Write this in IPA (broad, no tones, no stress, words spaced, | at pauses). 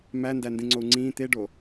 mændæ ndĩŋ͡ǀou̯ŋ͡ǀĩː t̪eɖo